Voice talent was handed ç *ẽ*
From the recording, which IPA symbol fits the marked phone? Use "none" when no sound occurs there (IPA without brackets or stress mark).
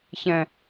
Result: ɛ̃